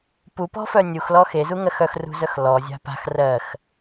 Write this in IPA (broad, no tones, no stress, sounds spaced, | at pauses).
p u p ɔ̤ f œ nʲ u x l ɔ x e z u ŋ ɜ x œ x r ṳ z œ x l ɔ zʲ a̤ p a̤ x r ɜ x